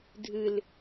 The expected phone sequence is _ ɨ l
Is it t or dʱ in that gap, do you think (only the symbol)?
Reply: dʱ